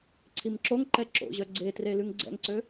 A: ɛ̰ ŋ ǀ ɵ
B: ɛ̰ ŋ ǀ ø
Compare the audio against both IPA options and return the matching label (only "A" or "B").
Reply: B